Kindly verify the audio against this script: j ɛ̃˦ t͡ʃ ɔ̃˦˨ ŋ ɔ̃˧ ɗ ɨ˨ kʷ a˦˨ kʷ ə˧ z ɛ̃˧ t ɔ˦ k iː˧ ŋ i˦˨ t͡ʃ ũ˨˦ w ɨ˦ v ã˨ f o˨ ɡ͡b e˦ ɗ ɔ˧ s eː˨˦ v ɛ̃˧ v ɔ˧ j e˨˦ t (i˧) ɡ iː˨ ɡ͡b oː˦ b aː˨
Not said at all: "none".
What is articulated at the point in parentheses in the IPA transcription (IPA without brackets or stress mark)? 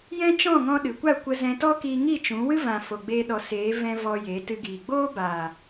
ɨ˧